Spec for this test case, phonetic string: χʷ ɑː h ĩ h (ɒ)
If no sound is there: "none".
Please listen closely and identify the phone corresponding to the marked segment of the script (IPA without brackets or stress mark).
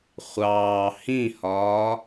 ɒː